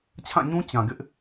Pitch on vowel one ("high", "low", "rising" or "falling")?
falling